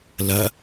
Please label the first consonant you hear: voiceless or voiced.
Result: voiced